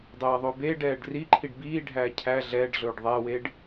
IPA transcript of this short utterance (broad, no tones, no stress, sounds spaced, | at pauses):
dˤ ɛː ðˤ ɵ b eː ɖ ɛː ɖ r i ǃʰ i ɖ b iː ɖʱ æː cʰ æ ɮ ɛː ɖ ɮ ɵː ɖ ðˤ æ w e ɖ